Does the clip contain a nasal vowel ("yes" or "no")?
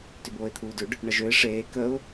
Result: no